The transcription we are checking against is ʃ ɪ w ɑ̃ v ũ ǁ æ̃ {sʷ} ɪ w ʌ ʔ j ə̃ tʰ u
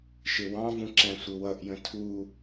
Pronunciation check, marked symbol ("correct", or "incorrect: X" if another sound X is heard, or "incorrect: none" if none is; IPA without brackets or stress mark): correct